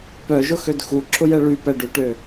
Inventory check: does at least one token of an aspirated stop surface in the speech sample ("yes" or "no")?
yes